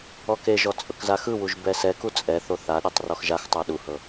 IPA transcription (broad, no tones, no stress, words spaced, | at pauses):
ɔkeʒɔ t͡sʼɤkzaxɯwuʒ bɛsɛku t͡sʼɛθo θaɗetˤ rɔxʒaxtˤa ɗuhɤ